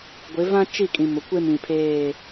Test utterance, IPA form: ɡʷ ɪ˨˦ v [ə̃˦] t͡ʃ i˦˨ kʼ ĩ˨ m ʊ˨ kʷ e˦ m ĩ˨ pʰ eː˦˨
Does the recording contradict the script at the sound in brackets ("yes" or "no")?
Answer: yes